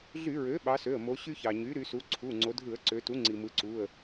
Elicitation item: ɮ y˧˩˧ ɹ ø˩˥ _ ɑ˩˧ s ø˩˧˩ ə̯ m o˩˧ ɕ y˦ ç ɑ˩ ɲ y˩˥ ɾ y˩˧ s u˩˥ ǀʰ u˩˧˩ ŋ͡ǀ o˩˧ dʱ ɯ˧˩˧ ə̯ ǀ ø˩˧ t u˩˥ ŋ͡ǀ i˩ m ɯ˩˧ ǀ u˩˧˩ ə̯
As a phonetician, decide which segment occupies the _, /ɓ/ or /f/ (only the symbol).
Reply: ɓ